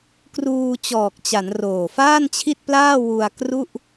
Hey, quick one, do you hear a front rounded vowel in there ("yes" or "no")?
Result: no